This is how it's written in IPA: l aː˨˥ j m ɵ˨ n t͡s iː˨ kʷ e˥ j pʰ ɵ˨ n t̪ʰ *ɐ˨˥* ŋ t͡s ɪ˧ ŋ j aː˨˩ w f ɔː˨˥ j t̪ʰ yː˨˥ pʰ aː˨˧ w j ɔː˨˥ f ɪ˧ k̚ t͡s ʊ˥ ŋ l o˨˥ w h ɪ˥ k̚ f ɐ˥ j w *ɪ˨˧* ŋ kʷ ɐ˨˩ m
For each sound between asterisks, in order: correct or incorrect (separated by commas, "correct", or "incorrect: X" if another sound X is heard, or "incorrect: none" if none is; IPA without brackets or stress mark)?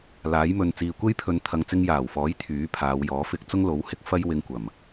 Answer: incorrect: ɐ˨, incorrect: ɪ˧